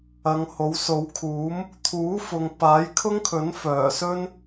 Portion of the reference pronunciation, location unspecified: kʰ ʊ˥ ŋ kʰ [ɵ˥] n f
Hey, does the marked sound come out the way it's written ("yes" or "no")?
no